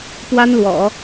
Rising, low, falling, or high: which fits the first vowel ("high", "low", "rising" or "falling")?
high